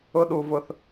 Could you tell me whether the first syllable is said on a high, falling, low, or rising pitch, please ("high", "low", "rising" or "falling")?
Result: high